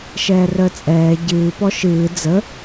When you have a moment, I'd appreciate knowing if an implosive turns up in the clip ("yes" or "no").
no